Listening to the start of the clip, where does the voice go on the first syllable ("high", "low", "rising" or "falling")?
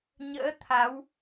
rising